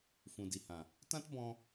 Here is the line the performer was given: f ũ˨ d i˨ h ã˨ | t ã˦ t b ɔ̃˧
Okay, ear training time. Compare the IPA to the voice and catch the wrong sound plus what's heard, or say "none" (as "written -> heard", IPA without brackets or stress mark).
none